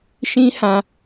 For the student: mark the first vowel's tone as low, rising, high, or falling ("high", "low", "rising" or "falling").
high